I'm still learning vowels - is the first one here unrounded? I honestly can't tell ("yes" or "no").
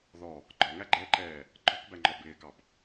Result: no